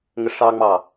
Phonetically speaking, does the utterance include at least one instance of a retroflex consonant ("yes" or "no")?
yes